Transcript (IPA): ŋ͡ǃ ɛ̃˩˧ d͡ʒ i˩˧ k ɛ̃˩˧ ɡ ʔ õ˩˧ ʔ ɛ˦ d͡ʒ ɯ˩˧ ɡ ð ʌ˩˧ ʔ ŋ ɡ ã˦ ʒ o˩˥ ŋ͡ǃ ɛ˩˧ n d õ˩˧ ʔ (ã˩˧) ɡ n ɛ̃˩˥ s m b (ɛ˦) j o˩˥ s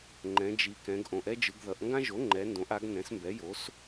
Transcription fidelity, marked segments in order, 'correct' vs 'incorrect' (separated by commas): incorrect, incorrect